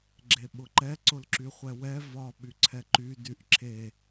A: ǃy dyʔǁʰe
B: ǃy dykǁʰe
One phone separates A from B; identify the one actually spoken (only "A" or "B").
A